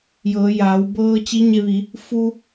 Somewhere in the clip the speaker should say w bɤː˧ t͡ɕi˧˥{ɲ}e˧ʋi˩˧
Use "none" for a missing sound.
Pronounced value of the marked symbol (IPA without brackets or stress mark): ɲ